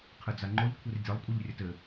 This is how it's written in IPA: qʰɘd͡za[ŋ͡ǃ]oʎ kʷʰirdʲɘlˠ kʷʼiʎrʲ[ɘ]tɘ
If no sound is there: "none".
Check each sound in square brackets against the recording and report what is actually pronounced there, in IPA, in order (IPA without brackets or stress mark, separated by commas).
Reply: ŋ͡ǃ, ɘ